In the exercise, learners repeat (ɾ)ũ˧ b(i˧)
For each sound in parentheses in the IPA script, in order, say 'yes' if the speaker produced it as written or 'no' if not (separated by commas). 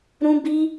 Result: yes, yes